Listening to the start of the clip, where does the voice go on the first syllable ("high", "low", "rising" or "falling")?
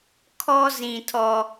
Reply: high